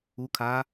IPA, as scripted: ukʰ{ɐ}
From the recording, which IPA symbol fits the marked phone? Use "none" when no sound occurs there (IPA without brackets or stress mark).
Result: a